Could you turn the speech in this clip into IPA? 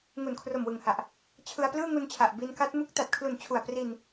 ŋ u˨˩ n kʰ r o˨˩ m w ɯ˨˩ ŋ h a˨˩ ʔ | t͡ɕʰ ɯ˧ a̯ p l ɯː˥˩ ŋ u˧ n t͡ɕʰ a˨˩ ʔ b i˧ n k a˦˥ t̚ m u˦˥ k̚ t a˨˩ t̚ kʰ l u˨˩ n t͡ɕʰ u˨˩ a̯ p r i˧ n

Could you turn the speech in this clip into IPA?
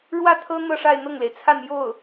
ɻ w ä˥˩ t̪ʰ ɤ˥ n̪ ɤ˥˧ ʂ a˥˧ ɪ̯ n̪ ɤ˥˩ ŋ l e˩ ɪ̯ t͡sʰ a˥˧ n j o˥˩ ʊ̯

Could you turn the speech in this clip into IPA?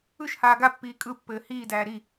ɯ ʃ h aː ɡ a pː iː kʼ ɯ pː ɘː h iː d æː ɾ i

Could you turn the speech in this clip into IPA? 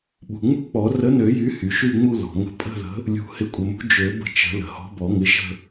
ɓ ṳ˩ ŋ͡m ṳ˥˧ k͡p ɔ˨˩˦ r ə˨˥ n ø˨˩˦ j y˨˥ h y˩ ʃ y˥˧ ŋ͡m u˥˧ l ɔ̤˩ ŋ ə̤˨˥ pʼ ə̤˥˧ ð ə̤˨˥ | lʲ ṳ˨˩˦ h ɪ˨˥ kʷʼ ə˩ m ṳ˨˥ d͡ʒ ø˨˩˦ b ə̤˥˧ t͡ʃ ə̤˨˩˦ l ə̤˩ h ɔ̤˨˥ b ɔ˨˩˦ ŋ ɪ˨˥ ʃ ə̤˥˧

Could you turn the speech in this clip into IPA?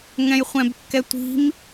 ŋ ɛ̃ j χʷ ɛ̃ b kː ɛ tʷ i̤ m

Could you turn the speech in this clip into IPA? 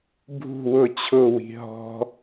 bʱ ṳ w ʊ t͡ɕʰ ʊ w i̤ ɦ ɔ̤

